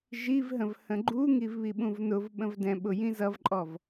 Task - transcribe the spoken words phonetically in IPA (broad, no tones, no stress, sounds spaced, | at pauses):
ʒ i v ɦ ə̃ v h ə̃ ɡ͡ǃ u ŋ i v β i ɓ ũ v n ʊ v ɓ ə̃ v d ɛ̃ ɓ ʊ j ĩ z ʌ v ǃʼ ɔ v